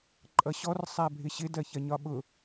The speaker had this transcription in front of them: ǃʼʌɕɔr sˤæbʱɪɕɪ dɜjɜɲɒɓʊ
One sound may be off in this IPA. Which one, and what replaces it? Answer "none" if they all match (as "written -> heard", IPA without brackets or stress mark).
j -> ç